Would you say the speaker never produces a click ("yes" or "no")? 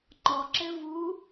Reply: no